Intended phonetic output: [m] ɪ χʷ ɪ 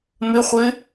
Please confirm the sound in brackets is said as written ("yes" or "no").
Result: yes